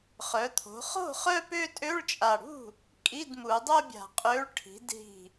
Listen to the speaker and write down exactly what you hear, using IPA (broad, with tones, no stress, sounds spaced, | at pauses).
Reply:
χ œ˩˧ t̪ʰ o̤˩˧ χ o̤˥˩ χ œ˥˧ p ø˥˧ tʼ ø˧˥˧ ɭ t͡ʃʼ a˨˩ ɽ ṳ˥˩ | kʼ i˧˥˧ d m u˩˧ dˤ o˥˧ bʲ a̤˨˩ qʼ ø˨˥ ɭ ʈʰ i̤˩˧ d ɦ i̤˨˩